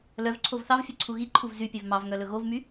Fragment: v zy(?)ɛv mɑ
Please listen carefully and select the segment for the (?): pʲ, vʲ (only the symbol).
pʲ